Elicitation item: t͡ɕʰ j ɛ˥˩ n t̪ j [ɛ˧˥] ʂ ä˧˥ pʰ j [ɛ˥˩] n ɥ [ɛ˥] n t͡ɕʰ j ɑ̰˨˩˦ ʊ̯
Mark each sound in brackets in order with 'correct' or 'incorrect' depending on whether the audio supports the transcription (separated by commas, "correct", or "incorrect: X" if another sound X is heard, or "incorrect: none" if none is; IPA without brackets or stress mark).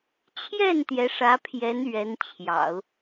correct, incorrect: ɛ˧˥, incorrect: ɛ˧˥